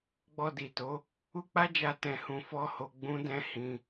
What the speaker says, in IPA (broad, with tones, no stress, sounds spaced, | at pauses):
ɡ͡b ɔ˧ d i˨ t o˨˦ | u˦ k͡p a˦ d͡ʒ a˧ t ɛ̃˧ h ũ˧ f ɔ˦ h o˧ ɡ͡b ũ˦ d ɛ̃˦ h ĩ˧